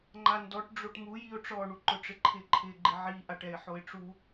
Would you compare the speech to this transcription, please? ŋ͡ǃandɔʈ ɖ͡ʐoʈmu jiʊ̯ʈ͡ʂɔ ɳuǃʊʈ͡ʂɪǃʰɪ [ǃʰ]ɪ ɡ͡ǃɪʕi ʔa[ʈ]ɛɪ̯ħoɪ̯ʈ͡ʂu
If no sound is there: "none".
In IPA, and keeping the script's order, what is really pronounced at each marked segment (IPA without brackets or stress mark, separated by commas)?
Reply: ǃʰ, ʈ